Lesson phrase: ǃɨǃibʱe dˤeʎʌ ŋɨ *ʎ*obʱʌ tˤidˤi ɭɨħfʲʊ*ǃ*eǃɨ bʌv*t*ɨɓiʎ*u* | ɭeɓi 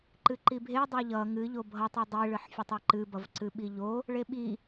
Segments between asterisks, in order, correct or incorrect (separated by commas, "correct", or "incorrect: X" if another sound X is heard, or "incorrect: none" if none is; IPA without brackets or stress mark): correct, incorrect: tˤ, incorrect: ǀ, incorrect: o